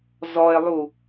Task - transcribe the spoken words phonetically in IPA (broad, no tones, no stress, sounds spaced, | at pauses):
z ɔ e̯ lˠ u